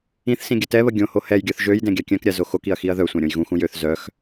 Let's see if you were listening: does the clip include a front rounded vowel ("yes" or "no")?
yes